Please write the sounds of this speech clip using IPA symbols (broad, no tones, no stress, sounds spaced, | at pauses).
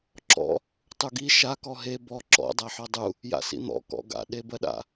ǁ ɔ̰ | tˤ u ɡ i ʃ a k ɔ ɦ e b ɔ ǁ ɔ̰ dˤ a ħ ɔ dˤ u | j a̰ s ḭ n̪ ɔ̰ k ɔ̰ ɡ a̰ ɗ e b ɜ ɗ a̰